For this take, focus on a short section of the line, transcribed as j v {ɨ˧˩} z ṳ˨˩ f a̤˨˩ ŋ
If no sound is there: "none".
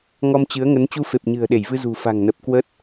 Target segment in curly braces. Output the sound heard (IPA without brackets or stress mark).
ɨ˧